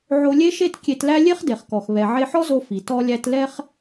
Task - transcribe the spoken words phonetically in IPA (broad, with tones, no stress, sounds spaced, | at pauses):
ʕ o˧ lʲ e˥ ʃ e˥ t kʲ e˧ t l æ˥ lʲ e˥ χ d e˩ χ k ɔ˩ x β ɛ˩ ʕ e˧ ħ ɔ˥ z o˧ f i˩ t ɔ˧ lʲ æ˧ t l ɛ˧ χ